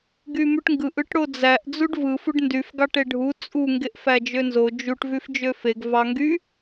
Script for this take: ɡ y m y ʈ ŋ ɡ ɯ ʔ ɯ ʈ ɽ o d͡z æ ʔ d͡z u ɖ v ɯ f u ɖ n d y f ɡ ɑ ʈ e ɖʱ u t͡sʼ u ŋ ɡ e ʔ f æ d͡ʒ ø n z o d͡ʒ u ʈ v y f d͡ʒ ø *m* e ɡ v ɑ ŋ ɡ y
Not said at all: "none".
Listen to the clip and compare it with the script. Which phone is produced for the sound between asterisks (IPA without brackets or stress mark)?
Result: f